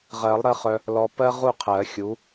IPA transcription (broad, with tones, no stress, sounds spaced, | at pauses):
ʁ ɜ˨˩˦ lˠ ɾ ɜ˧ χ œ˧ | l ɔ˧ p ɜ˥ ʁ u˥˨ qʰ ɜ˨˩˦ xʲ u˨˥